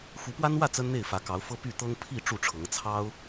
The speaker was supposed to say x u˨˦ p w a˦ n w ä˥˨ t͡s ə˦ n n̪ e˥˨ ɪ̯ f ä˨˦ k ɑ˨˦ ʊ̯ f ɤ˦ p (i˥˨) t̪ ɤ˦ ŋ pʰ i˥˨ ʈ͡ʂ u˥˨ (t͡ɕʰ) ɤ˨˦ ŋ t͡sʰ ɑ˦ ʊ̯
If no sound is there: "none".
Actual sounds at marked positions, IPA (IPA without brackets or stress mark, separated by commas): y˥˨, ʈ͡ʂʰ